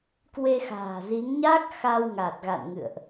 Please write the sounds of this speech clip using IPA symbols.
k w e˧ x a̤ː˨˩ z i˨˦ ŋ ɲ a˦˥ k̚ x a˧ w ŋ a˨˩ t̚ ɣ a̰˧˨ n ŋ ɨ̰˧˨ ə̯ ʔ

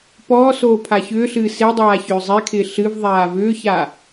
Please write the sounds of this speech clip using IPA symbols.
p ɔː s oː pʰ a ç ʏː ɬ ɨː s e dˤ aː ç ʏː zˤ e kʰ ɪː ɬ ɨ v ðˤ aː v ʏː ç a

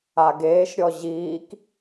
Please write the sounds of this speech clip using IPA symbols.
a ɡ eː ʃ ɾʲ ɔ ʑ iː k

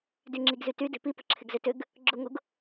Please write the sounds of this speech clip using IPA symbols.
d y ŋ͡ǁ i ɡ z y t y d e̤ p i p ə̤ ǁʰ ɪ ɡ z ʏ t ʏ ɡ | ɡ͡ǁ ʊ ŋ ʊ ɡ

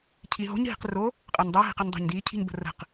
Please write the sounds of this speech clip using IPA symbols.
cʰ i ɦ o̤ ɲ ɦ i̤ q r o | qʼ ɜ ɲ dˤ əː ɦ i̤ q ə ɲ dˤ o̤ ɲ d iː cʰ i̤ ɲ b ə̤ r ə̤ q

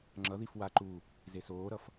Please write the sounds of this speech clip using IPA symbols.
ŋ͡ǁ ʌ ð i f w a ǃ u | z e s oː ɾ ʌ f

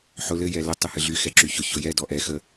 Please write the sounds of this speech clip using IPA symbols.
ħ ʊ l ɘ j ɛ l ɘ tˤ ɨ h ɨ ɮ y x ɛ ǁ y ç ʊ ç ʊ j ɛ d ɔ ʔ ɛ x ə

